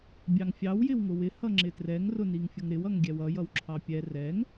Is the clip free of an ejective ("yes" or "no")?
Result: yes